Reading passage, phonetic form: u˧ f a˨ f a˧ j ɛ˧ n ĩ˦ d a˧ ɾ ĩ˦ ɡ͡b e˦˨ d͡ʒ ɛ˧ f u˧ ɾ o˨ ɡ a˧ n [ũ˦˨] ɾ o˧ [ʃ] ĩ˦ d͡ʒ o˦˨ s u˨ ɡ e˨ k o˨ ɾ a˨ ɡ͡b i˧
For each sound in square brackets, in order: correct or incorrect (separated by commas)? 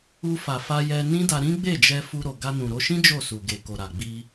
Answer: incorrect, correct